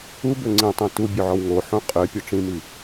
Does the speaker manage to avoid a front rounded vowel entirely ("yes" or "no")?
no